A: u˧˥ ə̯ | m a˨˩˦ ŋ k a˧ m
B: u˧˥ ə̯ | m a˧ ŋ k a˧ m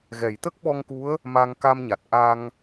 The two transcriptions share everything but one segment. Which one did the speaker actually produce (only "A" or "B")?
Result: B